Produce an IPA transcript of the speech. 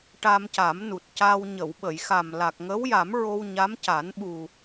ʈ a˧ m c a˨˩˦ m n u˨˩ t̚ c a˧ w ɲ ə˨˩˨ w ɓ ə˨˩˨ j x a˨˩ m l a˨˩ k̚ ŋ ə˧˥ w j a˨˩˦ m ɹ o˧ w ɲ a˧˥ m c a˨˩˦ n ɓ u˨˩

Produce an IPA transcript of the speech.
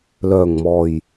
l œː˨˩ ŋ m ɔː˨˩ j

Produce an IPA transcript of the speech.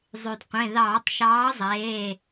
zˤ y˩ d qʷ ẽ˩˧˩ ð ɑː˧˩˧ tˤ ʃ ɑː˨˥ zˤ eː˩˧˩

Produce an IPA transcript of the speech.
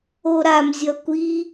o ɾ a m zʲ ʌ kʷ i

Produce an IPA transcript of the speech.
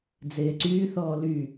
d͡z eː ǀ yː θ ɔː l y

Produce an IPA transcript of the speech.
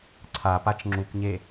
ǀʰ a p a t͡ʃ ŋ͡ǁ u k ɲ e

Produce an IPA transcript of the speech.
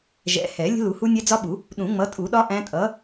ʒ ɛ̰˨˥ h ɛ˨˩˦ lʲ ə̤˦˥ l u˨˩˦ h u˦˥ nʲ ɛ˦˥ d͡z ɒ˦˥ ɓ u˨˩˦ | ɗ ũ˨˩˦ ŋ͡m ʌ˨˥ tʼ u˨˩˦ ɗ ɒ˦˥ ʔ æ̃˦˥ tʼ ʌ˨˥

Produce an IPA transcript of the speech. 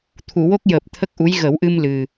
t̪ʰ u˨˩˨ w o˦˥ k̚ j əː˨˩ p̚ t̪ʰ ə˦˥ k̚ ʔ u˧˥ j ɣ ə˨˩˦ w ʔ ɨ˧ m l ɨ˨˩

